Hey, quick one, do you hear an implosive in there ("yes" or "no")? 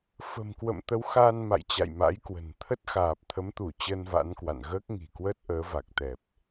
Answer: no